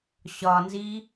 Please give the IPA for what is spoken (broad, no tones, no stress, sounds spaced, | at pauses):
ɕ ɒ n z i